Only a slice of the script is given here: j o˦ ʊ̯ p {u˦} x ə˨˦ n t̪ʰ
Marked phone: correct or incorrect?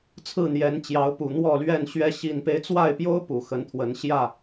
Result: incorrect